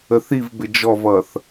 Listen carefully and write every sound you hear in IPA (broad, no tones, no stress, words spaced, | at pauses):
əθiv bɪd͡ʒɔvʌθ